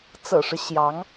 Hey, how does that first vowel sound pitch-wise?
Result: low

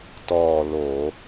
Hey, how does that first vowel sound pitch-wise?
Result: falling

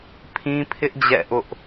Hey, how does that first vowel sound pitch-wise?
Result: high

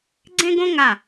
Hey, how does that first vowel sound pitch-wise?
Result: high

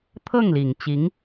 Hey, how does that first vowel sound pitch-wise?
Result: falling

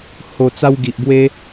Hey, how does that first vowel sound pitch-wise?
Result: low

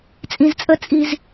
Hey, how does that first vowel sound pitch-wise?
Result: low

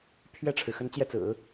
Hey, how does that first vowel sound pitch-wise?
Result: falling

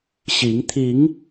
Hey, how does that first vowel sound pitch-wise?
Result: rising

